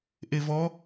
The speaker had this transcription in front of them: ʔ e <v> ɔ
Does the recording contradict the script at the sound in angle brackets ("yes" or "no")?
no